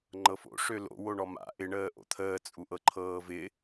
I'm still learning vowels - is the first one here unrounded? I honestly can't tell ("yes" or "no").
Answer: yes